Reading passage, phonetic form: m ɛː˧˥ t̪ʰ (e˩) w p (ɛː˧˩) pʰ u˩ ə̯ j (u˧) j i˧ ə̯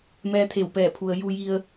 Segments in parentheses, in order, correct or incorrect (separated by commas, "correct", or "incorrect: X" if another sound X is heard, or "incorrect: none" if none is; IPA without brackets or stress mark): incorrect: e˧˩, correct, correct